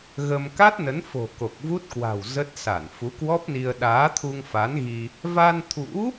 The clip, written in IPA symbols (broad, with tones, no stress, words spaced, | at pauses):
ɣə˧m ka˦˥t̚nə˨˦nfo̤˨˩ ko˨˩k̚vu˦˥t̚kwa̤˨˩w zə˦˥t̚ sa˧˩nfu˨˦kwɔ˦˥p̚ni˧ə̯ ɗaː˨˦t̪ʰu˧ŋfa˨˦nɣi˧ | va˧nt̪ʰṵ˧˥